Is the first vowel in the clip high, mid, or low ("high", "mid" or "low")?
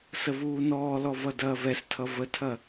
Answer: mid